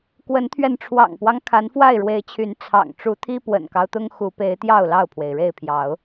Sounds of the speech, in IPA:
k w ə˨˦ n t̪ʰ ɥ ɛ˧ n ʈ͡ʂʰ w ɑ̰˨˩ ŋ p w ɑ˦ ŋ kʰ a˨˦ n f w a˥˨ ɪ̯ ɻ w e˨˦ ɪ̯ t͡ɕʰ y˨˦ n t͡sʰ ɑ̰˨˩ ŋ ʈ͡ʂ u˨˦ t̪ʰ i˦ p w ə̰˨˩ n k ɑ˦ ʊ̯ t̪ ʊ˦ ŋ x u˨˦ p e˨˦ ɪ̯ t̪ j ɑ˥˨ ʊ̯ l ɑ˥˨ ʊ̯ pʰ w e˩ ɪ̯ ɻ e˥˨ ɪ̯ pʰ j ɑ˨˦ ʊ̯

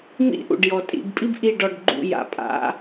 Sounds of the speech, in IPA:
m ḭ˥ ʔ ṵ˩ ɖ j ɔ˩ tʼ ḭ˧˩ b pʼ i˥ b ʔ i˧˩ ɖ ɔ˧˩ ɖ ɡ͡ǃ ṵ˧˩ j a̰˩ pʼ a̰˨˦

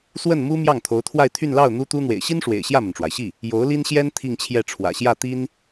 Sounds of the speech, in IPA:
s w ə˥˩ n m u˥ m j ɑ˥˩ ŋ t̪ʰ o˧˥ ʊ̯ t̪ʰ w a˥˧ ɪ̯ t̪ʰ y˥˧ n l ɑ˥˩ ʊ̯ n̪ u˥ t̪ u˥ n̪ w ḛ˨˩ ɪ̯ ɕ i˥ n ʂ w ḛ˨˩ ɪ̯ ɕ j ä˥˩ m ə˩ n ʈ͡ʂ w a˩ ɪ̯ ɕ i˥˩ | j o˧˥ ʊ̯ l i˥ n ɕ j ɛ˥ n t̪ʰ i˥˧ ŋ t͡ɕʰ j ɛ˥˩ ʈ͡ʂʰ w ä̰˨˩ ɕ j ä˥˩ t̪ i˥ n

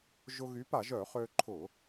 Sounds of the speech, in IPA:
ʒ ʊ˧ ɣ y˨˥ p a˧˩˧ ʒ œ˧˩˧ χ ø˧ ǃʰ ʊ˧˩˧

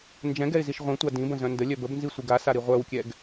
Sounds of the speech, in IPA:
n d͡ʒ ɛ̃ ɡ ɛ ɪ̯ z i ʃ ʁʷ ĩ tʷ a d ĩ b ə̃ z œ̃ n d ə lʲ œ b ə b n z i sʷ i ɡ a s a ɾ i ʁʷ œ w kʲ ɛ ɡ

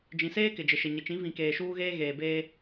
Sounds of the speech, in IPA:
d͡ʒ ĩ˨ s eː˦ k ɪ˨ d͡ʒ ɪ˨ ʃ ɪ˨ ɲ ɪ˨ t͡ʃ ĩ˨˦ v ĩ˨ k eː˨ ʃ uː˦ ɣ eː˦ ɣ eː˨ b eː˦

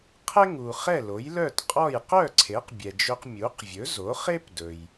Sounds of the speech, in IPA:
qʰ ɛ˥ ŋ u˩ χ ɛ˥˩ l o˩˥ j l œ˥˩ t qʼ ɔ˥˩ j q œ˥˩ ǀʰ e˩˥ q bʲ ɛ˩ d͡ʒ ɵ˧ q mʲ u˩˥ q vʲ ɵ˩˥ z o˩˥ χ e˥ p d ɵ˩ j

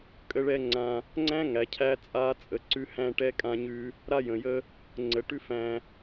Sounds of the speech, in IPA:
kʼ ə˦ ɭ ɛ˦ ŋ͡ǀ ã˦ | ŋ͡ǀ æ̃˦ ŋ æ˨ cʰ æ˦ t͡sʼ a˦ t͡sʼ ə˨˦ ǀ ʉ˦ h æ̃˦ ʈ ɛ˦ kʼ ã˦ ɲ ʉ˦ | ɾ a˦ j ə̃˨ j ə˦ | ŋ͡ǀ ə˨ ʈ ʉ˦ f æ̃˦

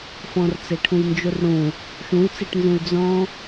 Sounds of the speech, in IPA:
f ɔ̃ r t͡s e ʈʰ ũ j n d͡ʒ u r ɽ ũ | ʃ ũ y̯ t͡s e ʈ n z ũ y̯ d͡z ɔ̃

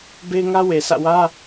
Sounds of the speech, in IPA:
b e˦ ɪ̯ ŋ ä˦ w e˨ s ä̰˦˨ w ä˦

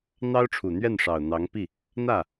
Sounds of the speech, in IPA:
n̪ ɑ˥ ʊ̯ ʈ͡ʂʰ u˨˩ n̪ ɥ ɛ˥˩ n ʂ ɑ˨˩ ʊ̯ n̪ ɑ˧˥ ŋ p i˥˩ | n̪ ä˥˩

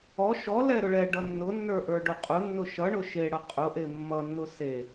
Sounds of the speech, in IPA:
ɔ ʃ ɔ l ɛ ɾ ʊ ɭ ɛ ɖ ʌ nː ʊ nː ə˞ ʔ ə˞ ɖ ʊ qʼ ʊ nː ʊ ʃ ʌ ɳ ʊ ʃ e ɽ ʌ qʼ ʊ ʔ e mː ʌ nː ʊ s e

